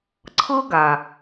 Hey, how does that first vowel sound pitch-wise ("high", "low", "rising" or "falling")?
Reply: high